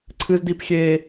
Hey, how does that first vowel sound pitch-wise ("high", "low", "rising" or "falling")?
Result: high